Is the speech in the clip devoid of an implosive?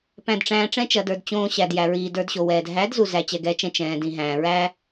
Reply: yes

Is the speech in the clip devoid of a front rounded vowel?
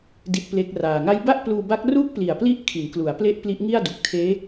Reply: yes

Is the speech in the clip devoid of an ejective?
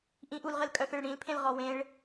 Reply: no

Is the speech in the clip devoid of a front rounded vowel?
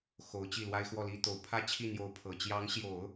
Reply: yes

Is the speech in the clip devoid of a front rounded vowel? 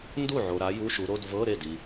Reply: yes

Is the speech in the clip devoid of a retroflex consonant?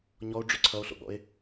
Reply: no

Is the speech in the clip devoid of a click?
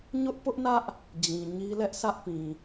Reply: yes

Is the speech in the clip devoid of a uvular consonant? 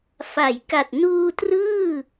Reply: yes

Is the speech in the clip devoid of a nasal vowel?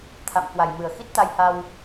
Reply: yes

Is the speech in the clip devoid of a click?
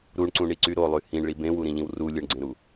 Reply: no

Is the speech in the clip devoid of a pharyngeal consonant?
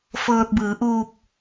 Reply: yes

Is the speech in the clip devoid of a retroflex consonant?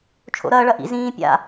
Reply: no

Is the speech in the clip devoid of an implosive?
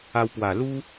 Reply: yes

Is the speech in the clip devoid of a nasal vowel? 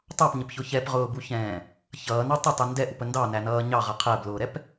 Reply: no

